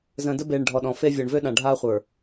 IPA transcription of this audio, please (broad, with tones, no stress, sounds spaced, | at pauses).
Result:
z ə̃ː˨ d ə˦ b eː˨ ɳ ɖʱ ɔ˨ ɗ ɔ̃˨ f e˦ vʲ ɔ˨ ɳ v ø˦ ɗ ã˨ ɖʱ aː˦ χʷ ə˞˨